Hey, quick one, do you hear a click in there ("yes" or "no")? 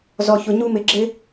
yes